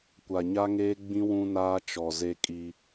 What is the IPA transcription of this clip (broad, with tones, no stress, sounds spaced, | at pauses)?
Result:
kʷ a˨ ɲ a˦ ŋ eː˦ ɡ͡b ĩ˦ w ũ˦ n aː˦ t͡ʃ ɔ˨ z e˦ kʼ i˦